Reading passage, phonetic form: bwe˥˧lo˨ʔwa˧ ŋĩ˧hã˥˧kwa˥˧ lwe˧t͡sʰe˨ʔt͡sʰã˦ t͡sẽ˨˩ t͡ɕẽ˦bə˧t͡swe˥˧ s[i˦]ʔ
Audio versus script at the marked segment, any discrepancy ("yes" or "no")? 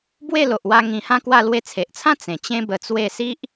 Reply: no